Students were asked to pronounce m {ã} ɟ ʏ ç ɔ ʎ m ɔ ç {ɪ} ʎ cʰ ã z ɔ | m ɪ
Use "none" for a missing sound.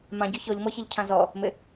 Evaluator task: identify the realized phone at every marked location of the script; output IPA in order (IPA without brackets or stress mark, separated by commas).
ã, ɪ